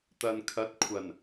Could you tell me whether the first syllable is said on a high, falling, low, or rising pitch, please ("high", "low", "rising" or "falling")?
low